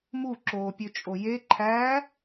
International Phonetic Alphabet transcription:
m u ǁ oː pʲ ø t͡ʃʼ o j e ǃʰ æ

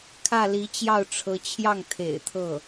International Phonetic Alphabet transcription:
kʰ ä˥˩ l i˧˥ t͡ɕ j ɑ˥˩ ʊ̯ ʈ͡ʂʰ ɤ˧˥ t͡ɕʰ j ɑ˥˩ ŋ t̪ʰ ḛ˨˩ ɪ̯ t̪ʰ ɤ˥˩

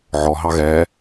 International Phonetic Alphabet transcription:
ʕ ɔ ɦ ɑ ɣ ɛ

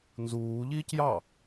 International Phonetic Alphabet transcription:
n z uː ʎ iː c j ɑ

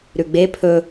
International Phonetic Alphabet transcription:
ɾ ʉ ɡ͡b e pʰ ɵ

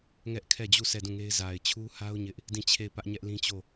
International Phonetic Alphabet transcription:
ŋ ɛ˦ ʔ kʰ ɛ˦˨ d͡ʑ u˦˨ s ɛ˦˨ d ũ˦˨ ŋ e˦ ɪ̯ z a˨ ɪ̯ t͡ɕʰ u˦ h a˦ ʊ̯ ɲ ɪ˦ ʔ | d ĩ˦˨ t͡ɕʰ e˦˨ ɪ̯ p ä˦ ʔ ɲ ɛ˦ ʔ l ĩ˦ t͡ɕ o˦˨

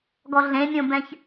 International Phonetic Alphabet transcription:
ɡ ɔ ɮ ẽ mʲ õ b ɛ̃ ç

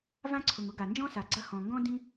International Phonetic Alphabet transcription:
v ã˥ ǀʰ ʊ˩ ŋ ʊ˥ ɡ a˩ n d͡ʒ ɔ̃˥ s a˩ ɡ͡ǀ ɐ˥ h ɔ̃˩ ŋ ɡ ɔ̃˥ d ĩ˥

